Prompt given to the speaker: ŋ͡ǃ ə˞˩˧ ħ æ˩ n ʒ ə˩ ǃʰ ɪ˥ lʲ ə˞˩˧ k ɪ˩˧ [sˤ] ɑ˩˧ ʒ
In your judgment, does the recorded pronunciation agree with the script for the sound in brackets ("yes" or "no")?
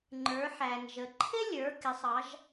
yes